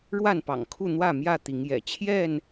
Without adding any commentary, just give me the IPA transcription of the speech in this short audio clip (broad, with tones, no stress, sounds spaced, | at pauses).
ɻ w a˥˨ n p ɑ̰˨˩ ŋ kʰ u˥˨ n̪ w ä˥˨ m j ä˥˨ t̪ i˨˦ ŋ j ɛ̰˨˩ t͡ɕʰ j ɛ˥˨ n